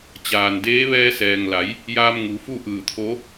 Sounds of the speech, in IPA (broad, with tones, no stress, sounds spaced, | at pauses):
t͡ɕ aː˩ n d eː˧˥ ʋ ɛː˧ s ɛː˩ ŋ l a˩˧ j | j aː˧ m ŋ u˩˧ f u˥˨ ʔ ɯː˧˩ t̪ʰ o˧˥